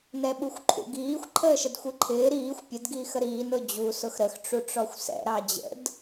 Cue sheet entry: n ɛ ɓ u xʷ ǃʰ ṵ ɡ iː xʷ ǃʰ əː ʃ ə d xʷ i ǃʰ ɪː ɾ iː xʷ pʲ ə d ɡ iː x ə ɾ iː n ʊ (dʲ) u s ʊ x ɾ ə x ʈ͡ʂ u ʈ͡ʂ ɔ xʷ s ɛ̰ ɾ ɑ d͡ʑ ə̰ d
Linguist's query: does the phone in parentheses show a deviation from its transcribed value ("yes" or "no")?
yes